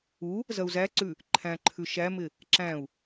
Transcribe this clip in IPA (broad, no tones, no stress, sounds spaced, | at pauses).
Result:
u | z ɐ u̯ z æ ǀ ʉ | ǃʰ æ̃ ǃʰ ʉ ʃ æ m ɪ | ǁ æ̃ u̯